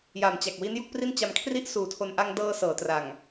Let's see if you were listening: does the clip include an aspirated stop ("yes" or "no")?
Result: yes